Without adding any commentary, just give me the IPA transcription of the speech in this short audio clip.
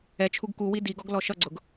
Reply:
ɛ t͡ʃʰ u ɡ k u w i d i ɡ ɔ ɡ l ɔ ʃ ʌ ɡ͡ǀ ʊ ɡ

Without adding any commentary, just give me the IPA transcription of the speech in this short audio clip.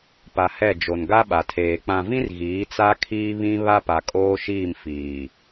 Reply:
p a˨ h ɛ˦˨ d͡ʒ o˨ n ɡ a˦ ɓ a˨ tʰ eː˨ k͡p ã˨ v ĩ˦ r ɣ iː˨˦ t͡s a˦ kʰ iː˦ β ĩ˦ β a˦ p a˨ kʼ oː˦ ʃ iː˦˨ m f iː˨

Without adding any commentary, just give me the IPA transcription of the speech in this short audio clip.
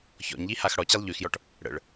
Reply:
ç ɔ̰ ɲ ʎ i h a x ɽ ɔ t͡ɕ i lˠ ʎ y x j ɔ ʈ | ɽ ə̰ ɭ

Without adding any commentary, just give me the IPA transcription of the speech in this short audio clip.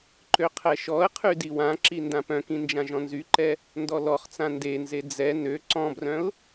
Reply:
ǃ ø qʰ ɛ ʃ ɔ ə̯ qʰ y d i w ã ǁ i n d ã p œ̃ k ĩ n d͡ʒ ã ʒ ɔ̃ n z y ǃ ɛ | n d ɔ l ɔ χ t͡s ã n d e n z e d͡z ɛ n ø ǀ ɔ̃ b r œ̃ ʊ̯

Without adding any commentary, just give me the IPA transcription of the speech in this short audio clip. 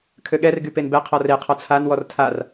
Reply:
kʰ ø ɠ ɛ r ɡ y p e n b ɛ qʰ ɔ r e qʰ ɔ t͡sʰ a n w ɔ r tʰ a r

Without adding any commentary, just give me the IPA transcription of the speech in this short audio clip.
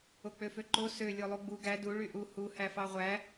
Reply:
o k͡p ø f ø ǃ o s ø lʲ o lˠ u ɡ͡b u ɡ æ d u ɭ y ʔ u h u h æ f ɑ ʁʷ æ

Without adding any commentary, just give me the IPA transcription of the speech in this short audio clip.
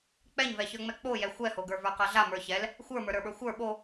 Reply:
k͡p ɛ ɲ v ɛ ç ə˞ ŋ͡m ɛ k͡p o j ɛ xʷ ɛ h o ɡ ə˞ v ə˞ q a ɮ a m ə˞ ç ɛ l | xʷ ə˞ m ə˞ ɾ ə˞ ɓ ə˞ xʷ ə˞ ɓ o

